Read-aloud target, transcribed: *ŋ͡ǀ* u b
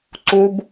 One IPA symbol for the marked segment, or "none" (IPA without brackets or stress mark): ǀ